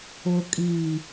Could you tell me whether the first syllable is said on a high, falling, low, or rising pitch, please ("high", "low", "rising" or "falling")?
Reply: low